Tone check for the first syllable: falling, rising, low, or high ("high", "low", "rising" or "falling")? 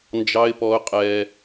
high